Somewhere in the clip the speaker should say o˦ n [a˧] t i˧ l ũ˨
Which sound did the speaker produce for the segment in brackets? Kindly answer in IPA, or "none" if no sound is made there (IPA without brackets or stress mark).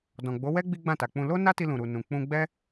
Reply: a˦